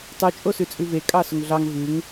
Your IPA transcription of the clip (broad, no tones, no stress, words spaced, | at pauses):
tˤu t͡ʃʼosʉt͡sʼʉve kʼɑsʊŋɮɑŋ vʉŋ